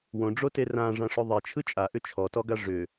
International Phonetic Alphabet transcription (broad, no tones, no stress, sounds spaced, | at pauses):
w õ ɖ͡ʐ o t e r ã ʐ ã ʂ ʏ ðˤ e t͡ʃʰ ɯ t͡ʃʼ a ʔ ʏ t͡ʃʰ ɔ t ɔ ɡ a ʐ ʏ